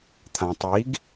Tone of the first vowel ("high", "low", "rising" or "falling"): low